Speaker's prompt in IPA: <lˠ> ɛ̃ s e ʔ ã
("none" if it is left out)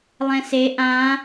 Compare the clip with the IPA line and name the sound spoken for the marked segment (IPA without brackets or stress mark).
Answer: lˠ